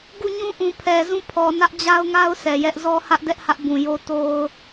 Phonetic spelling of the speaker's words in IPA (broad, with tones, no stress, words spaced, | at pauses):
ɡu˦˨ɲũ˦ʔũ˨ pʰɛ˨zũ˦˨pʰɔ˨ nä˦ʔ d͡ʑa˦ʊ̯ŋa˦ʊ̯ sɛ˨jɛ˦ʔ zɔ˦ hä˦ʔdɛ˦ʔhä˦ʔ bũ˨ jo˦ to˦ʊ̯